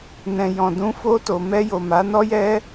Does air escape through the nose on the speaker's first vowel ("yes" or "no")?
yes